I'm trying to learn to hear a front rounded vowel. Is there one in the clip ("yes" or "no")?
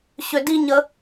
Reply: yes